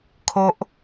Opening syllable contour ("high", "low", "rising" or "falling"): low